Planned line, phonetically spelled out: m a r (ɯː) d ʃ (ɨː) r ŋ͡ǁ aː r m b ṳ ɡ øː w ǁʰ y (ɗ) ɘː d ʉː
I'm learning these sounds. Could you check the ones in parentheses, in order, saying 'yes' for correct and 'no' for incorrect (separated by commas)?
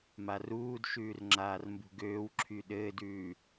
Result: no, no, yes